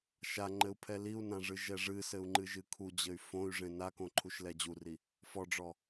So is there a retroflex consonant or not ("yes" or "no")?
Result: yes